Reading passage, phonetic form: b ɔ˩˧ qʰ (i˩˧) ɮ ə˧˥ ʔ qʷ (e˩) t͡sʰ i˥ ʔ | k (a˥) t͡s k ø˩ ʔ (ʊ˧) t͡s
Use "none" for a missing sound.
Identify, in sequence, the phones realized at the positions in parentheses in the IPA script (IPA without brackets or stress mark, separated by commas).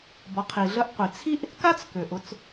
i˩, i˩, a˥, ʊ˧